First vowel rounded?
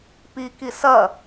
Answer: no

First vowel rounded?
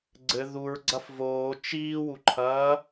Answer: no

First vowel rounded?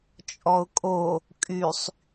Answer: yes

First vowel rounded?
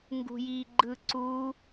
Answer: yes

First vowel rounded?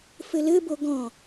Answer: no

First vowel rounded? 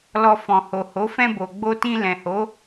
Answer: yes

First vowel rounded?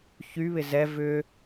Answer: yes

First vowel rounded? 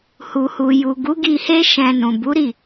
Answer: yes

